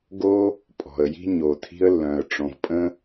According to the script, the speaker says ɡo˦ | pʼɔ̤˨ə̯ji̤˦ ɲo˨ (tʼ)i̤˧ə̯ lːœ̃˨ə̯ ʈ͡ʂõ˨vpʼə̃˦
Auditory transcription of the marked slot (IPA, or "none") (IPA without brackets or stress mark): tʰ